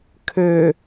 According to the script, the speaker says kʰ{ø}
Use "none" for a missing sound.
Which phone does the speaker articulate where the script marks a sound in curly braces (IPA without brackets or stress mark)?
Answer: ø